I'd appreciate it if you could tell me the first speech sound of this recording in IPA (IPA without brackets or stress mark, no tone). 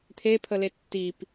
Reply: t̪ʰ